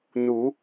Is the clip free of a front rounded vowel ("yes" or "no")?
yes